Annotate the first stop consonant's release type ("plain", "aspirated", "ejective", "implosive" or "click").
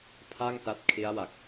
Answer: aspirated